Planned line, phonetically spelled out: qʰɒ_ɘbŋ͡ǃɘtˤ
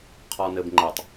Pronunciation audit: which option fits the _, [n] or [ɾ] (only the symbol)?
n